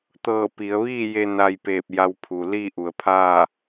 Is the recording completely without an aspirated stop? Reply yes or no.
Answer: no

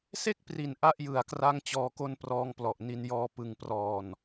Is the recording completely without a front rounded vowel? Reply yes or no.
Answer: yes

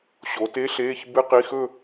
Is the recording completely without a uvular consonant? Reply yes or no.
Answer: no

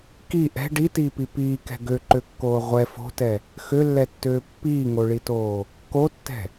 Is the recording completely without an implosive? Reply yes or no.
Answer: yes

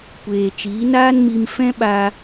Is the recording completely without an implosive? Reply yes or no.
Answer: no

